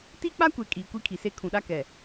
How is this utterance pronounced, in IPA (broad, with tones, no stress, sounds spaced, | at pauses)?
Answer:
t i˦ k͡p a˦ kʷ e˨ kʼ iː˨ kʷ i˦ kʰ i˨ s e˦ kʰ ũ˨ ɗ a˦ k ɛ˨